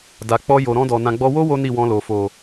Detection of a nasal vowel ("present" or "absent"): present